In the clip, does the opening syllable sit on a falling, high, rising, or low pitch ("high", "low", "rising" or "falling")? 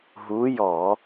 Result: rising